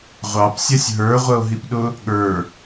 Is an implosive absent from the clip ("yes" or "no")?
no